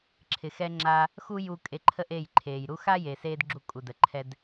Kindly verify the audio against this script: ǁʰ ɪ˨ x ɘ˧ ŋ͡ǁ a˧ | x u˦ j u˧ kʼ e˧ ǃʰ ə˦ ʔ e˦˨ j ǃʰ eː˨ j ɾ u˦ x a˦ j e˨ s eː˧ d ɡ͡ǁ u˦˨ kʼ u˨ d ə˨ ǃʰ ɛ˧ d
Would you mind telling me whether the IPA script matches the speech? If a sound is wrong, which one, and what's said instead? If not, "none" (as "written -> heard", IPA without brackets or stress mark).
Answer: ɘ˧ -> ɛ˧